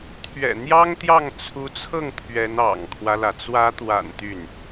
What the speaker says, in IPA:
t̪ʰɥɛ̰˨˩n̪jɑ˥ŋt̪jɑ˥˩ŋ t͡sʰu˧˥t͡sʰɤ˥˩ŋ t̪ʰɥɛ˧˥n ɑ̰˨˩ŋkʰwä˦lä˩ t͡swä˧˥t̪wa̰˨˩n t̪y˥˩n

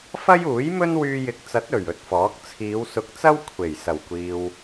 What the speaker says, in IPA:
fɐ˥juː˨˥jmɵ˥n wyː˧jɪ˨˥k̚t͡sɐ˨˥t̚ ɵ˨˩ɥ ɵ˥t̚fɔː˨˥k̚ t͡sʰiː˨˧wsʊ˨˥k̚t͡sɐ˥w kʷʰe˨˩j sɐ˨˩wkʷiː˨w

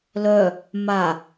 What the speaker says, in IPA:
lœ | ma

